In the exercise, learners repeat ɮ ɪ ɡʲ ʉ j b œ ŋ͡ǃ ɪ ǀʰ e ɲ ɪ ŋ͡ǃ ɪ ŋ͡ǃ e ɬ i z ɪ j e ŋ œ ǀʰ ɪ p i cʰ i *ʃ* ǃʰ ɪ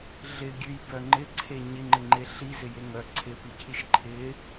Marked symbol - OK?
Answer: yes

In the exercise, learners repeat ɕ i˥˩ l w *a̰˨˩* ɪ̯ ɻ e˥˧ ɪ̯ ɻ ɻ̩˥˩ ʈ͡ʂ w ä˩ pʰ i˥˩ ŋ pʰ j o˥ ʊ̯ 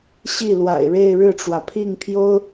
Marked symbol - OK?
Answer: yes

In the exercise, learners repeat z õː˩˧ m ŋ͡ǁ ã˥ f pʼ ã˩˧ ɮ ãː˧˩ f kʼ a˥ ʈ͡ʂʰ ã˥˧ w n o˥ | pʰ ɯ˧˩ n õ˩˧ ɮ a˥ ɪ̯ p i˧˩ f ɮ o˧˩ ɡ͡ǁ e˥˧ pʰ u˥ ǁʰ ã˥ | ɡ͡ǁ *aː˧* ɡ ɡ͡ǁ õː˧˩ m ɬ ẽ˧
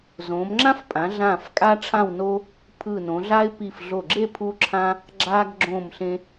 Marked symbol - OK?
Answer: yes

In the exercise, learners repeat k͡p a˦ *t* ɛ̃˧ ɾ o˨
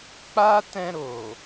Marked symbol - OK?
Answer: yes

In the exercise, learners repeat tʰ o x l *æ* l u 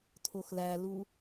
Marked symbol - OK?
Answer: yes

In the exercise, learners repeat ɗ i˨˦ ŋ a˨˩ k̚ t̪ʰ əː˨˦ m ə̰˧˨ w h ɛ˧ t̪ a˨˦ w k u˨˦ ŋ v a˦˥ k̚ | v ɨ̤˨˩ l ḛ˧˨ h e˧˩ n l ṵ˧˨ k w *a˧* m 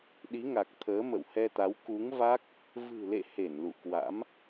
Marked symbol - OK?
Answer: no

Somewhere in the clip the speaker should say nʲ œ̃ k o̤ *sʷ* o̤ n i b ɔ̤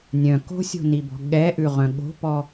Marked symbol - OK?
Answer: no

